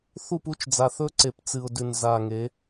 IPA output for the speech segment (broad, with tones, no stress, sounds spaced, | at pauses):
θ u˦˨ p u˦ t͡ʃ d͡z a˨ θ ɵ˦ ǀ e˨ p t͡s ɨ˨ ʊ̯ d ʉ˨ n z a˨ ŋ e˨˦